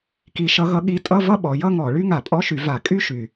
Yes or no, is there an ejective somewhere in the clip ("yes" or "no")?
yes